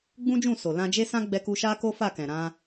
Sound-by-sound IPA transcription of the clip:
ɡ͡b ũ˦ d͡ʒ ũ˦˨ s o˨ l ã˧ d͡ʒ e˦ s ã˦ ɡ͡b ɛ˧ k u˧ ʃ a˦ k o˦ f a˦˨ k ɛ̃˨ ɾ ã˧

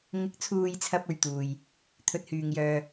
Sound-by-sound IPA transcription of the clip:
ŋ ɪ˨˥ k̚ t͡sʰ uː˨ j t͡sʰ ɐ˨ p̚ ɵ˨ ɥ t̪ uː˨ j | t̪ʰ ɵ˧ t̚ h yː˨ ŋ j œː˧

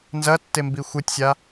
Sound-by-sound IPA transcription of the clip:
n z ɐ tː e m b i xʷ ɨ tʲ sʲ a

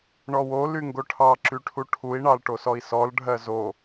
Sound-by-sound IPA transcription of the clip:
ɳ ɔ w o l y ŋ ɡ o ʈʰ ɑ ǁ y ʈʰ u ʈʰ u i̯ ɳ ɑ l ʈ o s ɔ i̯ s ɔ l ɖʱ ɜ z o

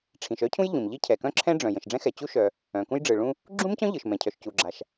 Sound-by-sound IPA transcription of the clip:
ʈ͡ʂʰ ĩ˩ ʃ œ˥ cʰ ũ˥ j ʎ ũ˩ m ʎ i˥ cʰ ɛ˩ k œ̃˥ ǁʰ ɛ̃˥ ɖ͡ʐ œ̃˩ j ə̃˩ ʃ ɖ͡ʐ ɛ̃˥ x ɛ˩ t͡ɕ u˥ ʃ œ˩ | œ̃˩ k ũ˥ j ɖ͡ʐ ɯ˩ ɭ ũ˥ | ɡ͡ǁ ũ˥ m c œ̃˥ ʎ ɯ˩ ʃ m ɛ̃˩ cʰ œ˩ ʃ c u˩ ɡ͡ǁ a˩ ʃ

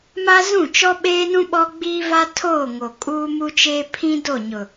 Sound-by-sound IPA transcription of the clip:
m a˦ z ũ˦˨ t͡ʃ ɔ˦ ɓ eː˦ n ũ˦ ɓ ɔ˦ ɡ͡b iː˦ v a˦ tʰ oː˦˨ ŋ o˨ kʼ uː˦ m u˦ t͡ʃ eː˦ pʰ ĩ˦ d o˦˨ ɲ ʊ˨

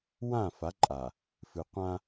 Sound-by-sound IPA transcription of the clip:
w ã˦˨ f a˨˦ ǃʼ a˨ | f ɨ˨ qʷ ã˦

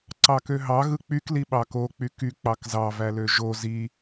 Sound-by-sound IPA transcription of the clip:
ǀ ɑ k ø ɦ ɑ ɣ ɯ k͡p y k l i ɓ ɑ k o k͡p y k y k͡p ɑ k z ɑ v æ l ø ʒ o z i

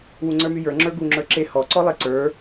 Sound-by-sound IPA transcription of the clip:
w u ŋ͡ǀ ə˞ m y j ə˞ ŋ͡ǁ ə˞ ɡ u ŋ͡ǁ ə˞ ǁ e h ɔ ǀ ɔ lˠ e ǀ ə˞

